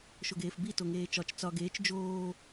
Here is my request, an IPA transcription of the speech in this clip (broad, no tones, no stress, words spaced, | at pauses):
ʃoɡeːfbi toŋeːt͡ʃɒt͡ʃ t͡sɒ ɡeːt͡ʃ d͡ʒoː